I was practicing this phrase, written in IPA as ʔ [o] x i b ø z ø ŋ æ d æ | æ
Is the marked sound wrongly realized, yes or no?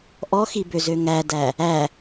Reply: yes